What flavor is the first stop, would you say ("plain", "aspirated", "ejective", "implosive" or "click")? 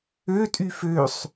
ejective